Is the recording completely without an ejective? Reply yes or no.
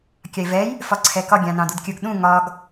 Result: yes